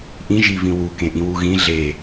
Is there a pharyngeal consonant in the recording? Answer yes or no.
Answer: no